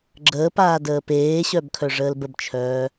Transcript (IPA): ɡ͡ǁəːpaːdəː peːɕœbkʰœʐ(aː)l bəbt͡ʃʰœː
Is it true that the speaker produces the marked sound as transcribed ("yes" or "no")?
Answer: no